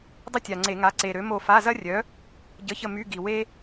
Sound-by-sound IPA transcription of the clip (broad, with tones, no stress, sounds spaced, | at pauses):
dˤ ə˥ tʲ a˨˩ ŋ͡ǀ e˧˩˧ ŋ a˨˥ ǀ e˨˩ ɾ ø˨˥ m o˦˨ f a˧˥˧ z ɐ˥ rʲ œ˨˥ | ɟ ə˨˥ ç ə˦˨ m y˧˥˧ ɡ i˨˩ w e˥